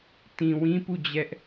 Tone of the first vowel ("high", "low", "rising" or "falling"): low